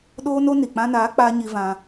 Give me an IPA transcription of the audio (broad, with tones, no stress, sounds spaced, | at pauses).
ɗ oː˧ n o˧ n i˨ k͡p ã˧ n aː˨˦ k͡p aː˧ ɲ i˧ v ã˧